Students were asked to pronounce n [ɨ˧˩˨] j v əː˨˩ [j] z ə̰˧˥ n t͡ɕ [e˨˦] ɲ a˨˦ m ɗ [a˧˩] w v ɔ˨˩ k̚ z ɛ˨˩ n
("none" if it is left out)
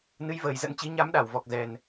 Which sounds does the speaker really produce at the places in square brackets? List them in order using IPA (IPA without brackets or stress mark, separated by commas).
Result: ɨ˨˦, j, i˨˦, a˧˩